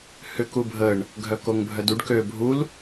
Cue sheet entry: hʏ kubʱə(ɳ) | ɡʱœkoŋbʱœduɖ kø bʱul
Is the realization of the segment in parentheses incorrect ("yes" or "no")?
no